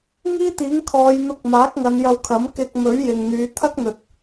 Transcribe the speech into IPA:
ŋ iː˥ t̪ iː˨˥ ŋ kʰ ɔː˨˧ j n̪ ʊ˧ k̚ m aː˨˥ k̚ ŋ ɐ˨˧ n j ɐ˧ w kʰ ɐ˨˥ m k ɪ˧ k̚ m ɵ˨˥ ɥ j ɪ˨ ŋ n̪ yː˨˧ t̪ʰ ɐ˥ k̚ n̪ ɵ˨ t̚

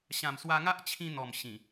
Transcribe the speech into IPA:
ɕ ã˨˩ m s w a˧ ŋ a˦ ʔ t͡ɕʰ ĩ˧ n̪ ɔ˨˩ m ɕ ĩ˨˩

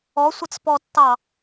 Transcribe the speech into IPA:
ɔ sʷ ə t͡s p ɔ tː ɑ

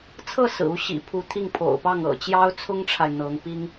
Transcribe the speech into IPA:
t͡sʰ ɤ˥˩ s ɹ̩˨˩ u˧˥ ɕ ḭ˨˩ pʰ u˧˥ t̪ʰ i˥˩ ŋ pʰ o̰˨˩ ʊ̯ p ɑ˥˩ ŋ ɤ̰˨˩ t͡ɕ j ɑ˥ ʊ̯ t͡sʰ ʊ˥ ŋ ʈ͡ʂʰ a˨ ɪ̯ n̪ ɤ˧˥ ŋ p i˥ ŋ

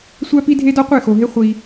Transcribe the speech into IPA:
sʷ æ˦ p i˦ dʱ e˦ d ɒ˦ qʷ e˦˨ x o˨ ɦ e˦ χʷ i˦

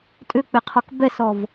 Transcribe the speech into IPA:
tʼ ʏ k͡p e qʰ ɔ k b ɛ s ɔ v

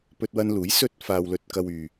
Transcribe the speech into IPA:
p ɵ˧ t̚ w ɐ˧ n l uː˨˥ j s ɵ˥ t̚ f aː˧ w l ɵ˧ t̚ k ɐ˧ w yː˨

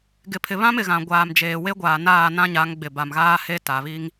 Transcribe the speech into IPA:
ɡ ɪ˨ pʰ ɪ˨ β ã˦ m ɪ˨ ɣ ã˨ ɡʷ aː˨ m d͡ʒ eː˨ w e˦ ɡʷ aː˨ n aː˦˨ n ã˦ ɲ a˨˦ ŋ ɡ͡b ɪ˨ b a˨ m ɣ aː˦ h e˦ t a˨ β i˦ ŋ

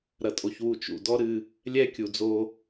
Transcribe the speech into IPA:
ɾ ɐ˨ tʼ o˨ ç w u˨ t͡ʃ ṵ˨ d ɔ˦ ɾ ɨ˦ | lʲ ɛ˦ kʲ u˨ d͡z o˦

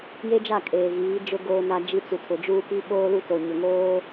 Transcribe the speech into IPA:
j e˦ d͡ʒ a˦˨ kʼ eː˨ ɣ iː˨˦ d͡ʒ ʊ˦ ɡ oː˦ n a˦ d͡ʒ i˦ t͡s u˨ tʰ ʊ˨ d͡ʒ uː˦ p i˦ ɓ oː˦ l u˦ t o˨ ɲ ʊ˨ ŋ oː˦

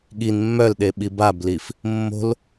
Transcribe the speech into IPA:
ɠ i n mː œ l ɗ e ɓ i b a b l i f | mː o̤ l

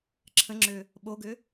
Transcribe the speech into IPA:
ǁʰ ə̃ ŋ͡ǁ ø | ɓ o ɡ ø

